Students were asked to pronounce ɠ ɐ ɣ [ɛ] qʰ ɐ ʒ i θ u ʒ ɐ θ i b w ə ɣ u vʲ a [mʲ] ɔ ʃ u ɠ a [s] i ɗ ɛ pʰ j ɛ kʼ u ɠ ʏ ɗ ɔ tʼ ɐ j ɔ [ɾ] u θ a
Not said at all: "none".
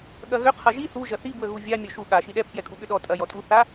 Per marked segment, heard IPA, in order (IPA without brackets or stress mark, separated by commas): ʏ, mʲ, ʃ, tʼ